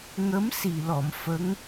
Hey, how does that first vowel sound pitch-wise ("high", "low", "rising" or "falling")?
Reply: rising